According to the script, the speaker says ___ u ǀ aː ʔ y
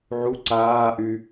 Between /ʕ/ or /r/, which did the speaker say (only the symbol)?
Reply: ʕ